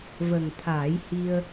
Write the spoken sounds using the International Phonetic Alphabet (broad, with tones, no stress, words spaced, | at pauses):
və˨˩ŋt̪ʰaː˨˩˦jhi˧ə̯